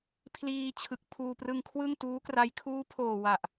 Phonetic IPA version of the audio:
pʰ l iː˧ t͡ɕʰ ɯ˨˩ k̚ pʰ uː˧ p r ɯ˧ ŋ kʰ w ɯ˥˩ ŋ t uː˦˥ k r a˦˥ j kʰ uː˦˥ pʰ oː˨˩ w a˨˩ ʔ

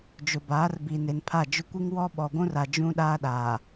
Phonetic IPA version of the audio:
d͡ʒ ʊ˨ b aː˨˦ r b iː˨ n e˨ n pʰ a˦˨ d͡ʒ ʊ˦ kʷ i˦ ŋ w ɔ˦ ɓ ɔ˨ ɡʷ ũ˦ r a˨ d͡ʒ ũ˦ ɗ aː˦ ɗ aː˨

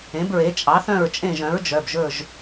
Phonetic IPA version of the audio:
ẽ˩˥ b ɹ e˩˥ t͡ʃʼ ɑ˩˥ θ œ̃˦˨ ɹ t͡ʃʼ ẽ˦˨ ʒ œ̃˩˥ ɹ d͡ʒ œ˩˧˩ b ʒ ɵ˦˨ ʒ

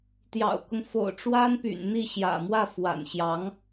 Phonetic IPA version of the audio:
t̪ j ɑ̰˨˩ ʊ̯ k ʊ˦ ŋ f o̰˨˩ ʊ̯ ʈ͡ʂ w a˥ n p y̰˨˩ n n̪ i˥˩ ɕ j ä̰˨˩ m w ä˥˩ f w a̰˨˩ n ɕ j ɑ˧˥ ŋ

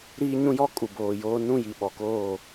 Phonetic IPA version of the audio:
ɾ iː˦ ɲ ũ˦ j ɔ˦ kʼ u˨ b oː˨ j oː˦ n ũ˦˨ j i˨ ɓ ɔ˨ k oː˦˨

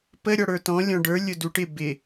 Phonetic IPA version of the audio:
p ə ɾʲ ɔ ɽ ə˞ t ɔ̃ lʲ ɔ̃ ɖ ə˞ lʲ ʊ d u ʈ ɪ b ɪ

